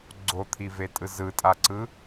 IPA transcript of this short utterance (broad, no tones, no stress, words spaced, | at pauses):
ɡ͡ǀot̪ʰivetʼɯ zɯtʼaǀɯ